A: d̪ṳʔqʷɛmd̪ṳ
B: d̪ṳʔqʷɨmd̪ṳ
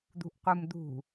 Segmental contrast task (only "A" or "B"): B